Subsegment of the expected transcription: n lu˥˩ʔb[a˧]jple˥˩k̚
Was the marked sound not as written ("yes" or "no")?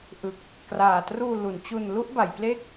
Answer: yes